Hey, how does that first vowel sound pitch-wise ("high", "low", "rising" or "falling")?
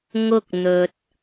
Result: high